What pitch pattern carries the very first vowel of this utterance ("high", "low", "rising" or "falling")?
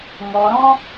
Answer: low